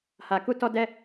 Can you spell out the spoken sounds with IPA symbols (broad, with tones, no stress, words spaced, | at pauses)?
ha˨ku˧ tɔ˧dɛ˧